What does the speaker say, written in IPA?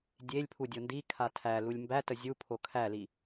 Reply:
dʲ e lʲ pʰ u dʲ o n d i kʰ a tʰ æ l u lʲ m b æ t ə zʲ u pʰ o kʰ æ l i

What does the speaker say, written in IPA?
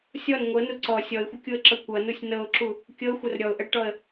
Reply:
sʲ ɔ n ŋʷ ɤ n u ǀ ɔ sʲ ɔ ɪ̯ xʷ ə kʲ u ə̯ ǁ ɤ kʷ ʌ n u sʲ n ɤ ʊ̯ ǁ u | kʲ ɤ xʷ ə r ɾʲ ɔ ʊ̯ ʔ ə ɽ ə ʈ ɔ ə̯

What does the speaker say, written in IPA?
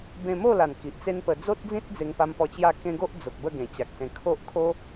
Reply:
b ẽ˧ m o˥˧ l a˨˩ n k i˨ ʔ t͡s e˦ n p ə˧ d͡z o˦ t̚ d͡z ĩ˦ t̚ d͡z e˧ ŋ p a˧ m p ɔ˧ t͡ɕ j a˥˧ k ẽ˦ ɡ o˦ ʔ d͡z o˨ k̚ b ə˥˧ ɡ ẽ˨˩ t͡ɕ a˨ k̚ s ẽ˧ kʰ o˦ ʔ kʰ o˦

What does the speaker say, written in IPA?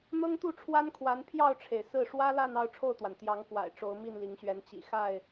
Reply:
n̪ ɤ˦ ŋ t̪ u˥˨ ʈ͡ʂʰ w a˦ n kʰ w a˨˦ n pʰ j ɑ˥˨ ʊ̯ ʈ͡ʂʰ e˩ ɪ̯ s ɹ̩˥˨ ʂ w ä˦ l a˥˨ n ɑ˥˨ ʊ̯ ʈ͡ʂʰ o˥˨ ʊ̯ t̪ w a˩ n t̪ j ɑ˨˦ ŋ k w a̰˨˩ ɪ̯ ʈ͡ʂ o˨˦ ʊ̯ m i˥˨ n l i˨˦ ŋ ɕ ɥ ɛ˨˦ n t͡ɕ ḭ˨˩ x a˥˨ ɪ̯

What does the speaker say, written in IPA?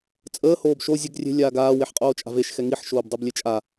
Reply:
t͡sʼ əː h oː b ʃ o zʲ ə ɡ rʲ e̤ lʲ aː ɡ aː w e ħ qʼ oː t͡ʃʼ a̤ v e ʃ x ɛ ŋ i ħ ʃ oː b dˤ o b lʲ e t͡ʃʼ a

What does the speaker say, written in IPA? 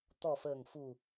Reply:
t̪ ɔ˨˩ f əː˨˩ ŋ f u˨˩

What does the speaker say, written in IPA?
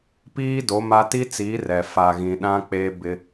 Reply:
p iː˦ d o˨˦ m a˦ t i˦ t͡s iː˨˦ r ɛ˨ f a˨ ɣ ĩ˨ ɗ ã˦ k͡p e˦ b ɪ˦

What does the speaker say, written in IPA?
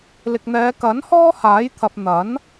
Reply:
l ɪ˨ k̚ n̪ ɛː˨˧ k ɐ˨˥ n h ɔː˥ h aː˨˥ j t̪ʰ ɐ˨ p̚ n̪ ɐ˨˥ n

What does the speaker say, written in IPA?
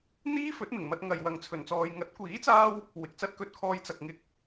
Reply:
n̪ iː˥ f ɵ˨˥ t̚ m ɪ˨˩ ŋ m ɐ˧ t̚ ŋ ɐ˨ j w ɐ˨ ŋ t͡sʰ ɵ˨˩ n t͡s ɔː˨ j ŋ ɐ˨˥ t̚ kʷ iː˨˥ t͡s aː˧ w | w ɪ˨˥ k̚ t͡s ɐ˧ t̚ k ɵ˧ t̚ kʰ ɔː˧ j t͡s ɐ˨ k̚ ŋ ɪ˧ k̚

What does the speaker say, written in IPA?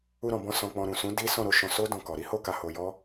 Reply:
u˧ ɾ ɔ̃˨ b ɔ̃˧ s ɔ̃˧ k͡p ɔ̃˧ ɾ ũ˨ s ũ˨˦ d i˦ s ɔ̃˦˨ ɾ o˧ ʃ ɔ̃˧ s o˦ d ɔ̃˧ k ɔ˨ ɾ i˨˦ h o˧ k a˨ h o˧ j ɔ˦

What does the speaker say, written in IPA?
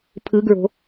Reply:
pʰ ɯ ɡ ɹ o̤

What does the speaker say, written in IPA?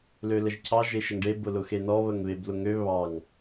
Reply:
l ø l ə ʒ cʰ ɑ ʒ e ʃ ə ŋ ɖ e b ʊ l ʊ x e n ɔ β ə ŋ β e b l ʊ ŋ ø β ɑ ŋ

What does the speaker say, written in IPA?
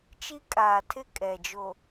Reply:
t͡ʃ i˦ kʼ aː˨ tʰ ɪ˦˨ kʼ ɛ˨ d͡ʒ o˨

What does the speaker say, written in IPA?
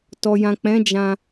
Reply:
t ɔ˨ j ã˨ k͡p ɛ̃˨˦ d͡ʒ ã˧

